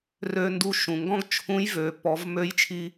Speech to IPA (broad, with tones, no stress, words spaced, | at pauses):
rø˧ ndu˧ʃũ˩ ŋɡɔ̃˥ɡt͡ʃʰũ˧˥jvø˩˧ pɔ˩˧v mø˧˥jt͡ʃʰi˧